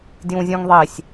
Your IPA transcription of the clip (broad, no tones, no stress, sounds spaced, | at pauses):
d j ũ zʲ ũ ŋ ðˤ i sʲ